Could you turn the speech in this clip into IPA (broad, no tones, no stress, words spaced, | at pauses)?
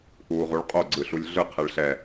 ʔuːʁuɭqʼo ɡ͡ǀɯɬulʲɮɯ qʰɛɭɬɛ